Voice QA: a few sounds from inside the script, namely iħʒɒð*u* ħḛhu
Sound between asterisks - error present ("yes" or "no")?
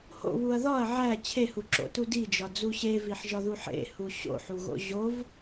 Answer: no